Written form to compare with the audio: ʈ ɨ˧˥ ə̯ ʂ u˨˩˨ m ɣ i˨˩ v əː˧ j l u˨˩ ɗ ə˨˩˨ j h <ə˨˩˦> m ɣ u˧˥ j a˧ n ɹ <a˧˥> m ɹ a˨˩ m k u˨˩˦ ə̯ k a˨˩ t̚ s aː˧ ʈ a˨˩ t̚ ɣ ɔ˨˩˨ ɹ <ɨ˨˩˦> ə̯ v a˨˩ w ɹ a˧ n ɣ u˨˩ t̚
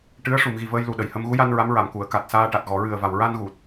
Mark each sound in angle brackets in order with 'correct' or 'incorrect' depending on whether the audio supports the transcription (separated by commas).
incorrect, correct, incorrect